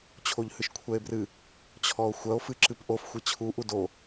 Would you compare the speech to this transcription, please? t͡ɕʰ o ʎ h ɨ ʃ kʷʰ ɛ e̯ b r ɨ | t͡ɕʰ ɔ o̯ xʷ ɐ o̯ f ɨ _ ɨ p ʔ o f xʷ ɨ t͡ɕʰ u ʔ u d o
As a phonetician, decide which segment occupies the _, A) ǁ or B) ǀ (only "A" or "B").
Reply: A